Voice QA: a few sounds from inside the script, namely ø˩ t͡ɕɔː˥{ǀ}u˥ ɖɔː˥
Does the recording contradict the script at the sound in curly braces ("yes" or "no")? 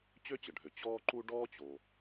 yes